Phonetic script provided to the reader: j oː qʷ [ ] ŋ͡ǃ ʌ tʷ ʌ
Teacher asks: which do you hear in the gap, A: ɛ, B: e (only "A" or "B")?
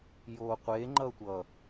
B